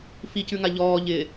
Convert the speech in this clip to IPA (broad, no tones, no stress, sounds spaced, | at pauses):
f i c ʉ ŋ a ʎ ɔː ʎ ɪ